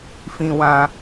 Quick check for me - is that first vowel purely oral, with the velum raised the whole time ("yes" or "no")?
no